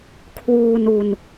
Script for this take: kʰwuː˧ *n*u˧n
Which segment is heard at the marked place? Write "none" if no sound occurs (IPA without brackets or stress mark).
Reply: n